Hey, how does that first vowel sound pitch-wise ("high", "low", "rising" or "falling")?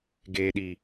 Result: low